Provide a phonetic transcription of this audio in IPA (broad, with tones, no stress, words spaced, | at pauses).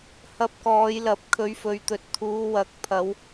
hɐ˧p̚kɔː˨˧jlɐ˨˥p̚kʰɵ˨˥ɥ fɵ˨ɥt̪ɵ˨˥t̚ t̪ʰuː˨˧ wɐ˨˥k̚ pʰɐ˨˧w